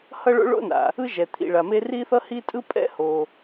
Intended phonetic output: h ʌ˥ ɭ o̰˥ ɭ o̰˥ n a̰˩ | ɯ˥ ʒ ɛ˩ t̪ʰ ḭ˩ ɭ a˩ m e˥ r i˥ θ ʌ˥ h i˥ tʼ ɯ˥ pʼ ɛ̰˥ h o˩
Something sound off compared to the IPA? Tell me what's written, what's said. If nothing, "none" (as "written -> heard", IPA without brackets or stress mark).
none